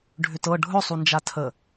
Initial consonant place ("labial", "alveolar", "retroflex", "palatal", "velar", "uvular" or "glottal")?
retroflex